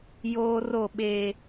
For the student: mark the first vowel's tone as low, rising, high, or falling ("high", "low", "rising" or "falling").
high